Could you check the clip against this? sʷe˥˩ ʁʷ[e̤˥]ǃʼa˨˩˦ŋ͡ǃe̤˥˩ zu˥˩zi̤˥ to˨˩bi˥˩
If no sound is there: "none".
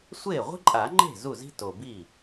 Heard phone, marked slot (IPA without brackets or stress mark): i̤˥